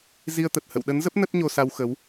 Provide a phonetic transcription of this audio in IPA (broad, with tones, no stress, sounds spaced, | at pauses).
z i˧ ə̯ t̪ ə˨˩ t̚ h ə̰˧˨ w ɗ ə˨˦ n z ə˦˥ p̚ n ə˦˥ t̚ ɲ o˧ s a˧ w x ə˨˦ w